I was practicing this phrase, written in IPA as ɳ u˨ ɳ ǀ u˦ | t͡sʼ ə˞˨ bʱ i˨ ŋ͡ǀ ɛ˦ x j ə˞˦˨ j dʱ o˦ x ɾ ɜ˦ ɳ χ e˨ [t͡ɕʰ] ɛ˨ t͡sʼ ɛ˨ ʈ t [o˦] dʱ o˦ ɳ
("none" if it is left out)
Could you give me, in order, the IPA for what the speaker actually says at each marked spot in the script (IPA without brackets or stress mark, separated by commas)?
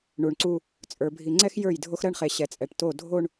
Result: ɕ, o˦˨